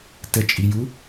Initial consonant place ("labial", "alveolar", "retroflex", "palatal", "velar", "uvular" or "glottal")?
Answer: alveolar